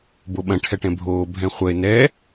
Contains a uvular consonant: yes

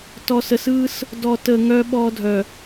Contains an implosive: yes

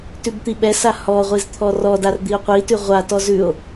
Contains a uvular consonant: yes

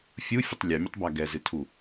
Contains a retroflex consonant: no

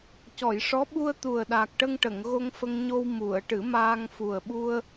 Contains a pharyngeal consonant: no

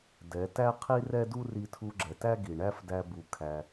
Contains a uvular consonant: yes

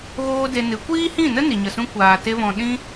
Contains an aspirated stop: no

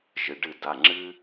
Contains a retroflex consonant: yes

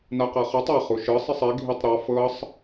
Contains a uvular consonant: yes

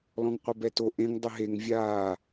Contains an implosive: no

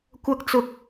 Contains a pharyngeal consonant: no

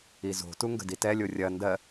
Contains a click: no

